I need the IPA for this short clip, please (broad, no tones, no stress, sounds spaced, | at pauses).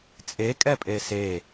t͡sʼ e kʼ ɛ pʼ e s e